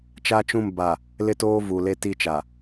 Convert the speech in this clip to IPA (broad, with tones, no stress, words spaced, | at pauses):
t͡ʃa˦t͡ʃũ˦˨m ba˨ | lɪ˦toː˦vu˨le˦ ti˦t͡ʃa˨